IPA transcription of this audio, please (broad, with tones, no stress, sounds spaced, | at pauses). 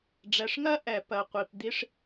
ɖ͡ʐ ɛ˩ ʂ ŋ ɜ˥ ʔ ɛ˩ p ɜ˩ qʷ i˩ p d̪ i˥ ʂ